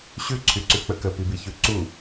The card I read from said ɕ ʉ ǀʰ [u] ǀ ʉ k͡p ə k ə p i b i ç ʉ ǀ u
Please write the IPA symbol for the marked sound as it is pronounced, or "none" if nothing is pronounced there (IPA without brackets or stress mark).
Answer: y